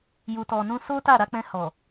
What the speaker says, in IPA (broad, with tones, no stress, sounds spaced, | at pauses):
j u˨ t ɔ˨ n ũ˧ s o˦ t a˦˨ ɾ a˨˦ k͡p ɛ̃˧ h ɔ˨